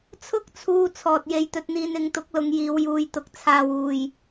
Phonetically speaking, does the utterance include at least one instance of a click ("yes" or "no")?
no